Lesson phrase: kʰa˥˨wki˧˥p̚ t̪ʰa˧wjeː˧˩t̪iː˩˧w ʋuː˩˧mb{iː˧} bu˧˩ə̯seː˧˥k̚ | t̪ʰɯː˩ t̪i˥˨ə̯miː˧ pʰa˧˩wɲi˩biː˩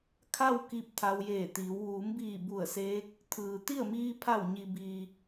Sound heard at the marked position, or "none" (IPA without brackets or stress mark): iː˧˩